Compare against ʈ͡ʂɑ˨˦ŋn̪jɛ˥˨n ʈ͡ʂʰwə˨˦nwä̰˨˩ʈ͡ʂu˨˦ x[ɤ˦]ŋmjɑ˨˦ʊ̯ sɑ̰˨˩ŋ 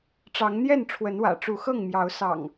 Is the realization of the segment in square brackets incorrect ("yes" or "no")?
yes